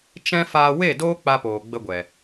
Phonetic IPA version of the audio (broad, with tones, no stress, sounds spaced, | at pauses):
t͡ʃ ɛ̃˦ f aː˧ w e˦˨ d oː˦ k͡p a˦ p oː˨ ɡ͡b ə˦ ɡʷ ɛ˨